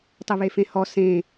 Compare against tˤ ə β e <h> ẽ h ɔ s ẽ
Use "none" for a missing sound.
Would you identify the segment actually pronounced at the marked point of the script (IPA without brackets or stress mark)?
f